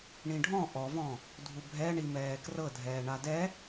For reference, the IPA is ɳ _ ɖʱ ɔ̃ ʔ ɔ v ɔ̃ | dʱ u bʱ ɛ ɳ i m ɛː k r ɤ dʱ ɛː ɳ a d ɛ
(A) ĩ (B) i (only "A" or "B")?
A